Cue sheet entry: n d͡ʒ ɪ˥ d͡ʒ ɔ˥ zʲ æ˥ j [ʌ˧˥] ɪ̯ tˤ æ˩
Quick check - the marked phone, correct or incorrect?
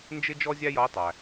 correct